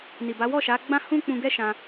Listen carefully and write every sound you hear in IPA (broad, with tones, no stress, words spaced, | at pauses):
ni˨ba˨˦wɔ˦˨ʃa˨˦ ɡ͡bã˦hũ˦k͡pũ˧ɡɛ˦ ʃã˧